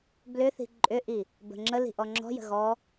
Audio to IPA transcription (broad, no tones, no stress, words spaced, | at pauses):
blʏθi̤ ǃʼʏʔi | bə̤ŋ͡ǁəli̤ ʔɔŋ͡ǁɔ̤jə̤ ɣɔ